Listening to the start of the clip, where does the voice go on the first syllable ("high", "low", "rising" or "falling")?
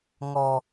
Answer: low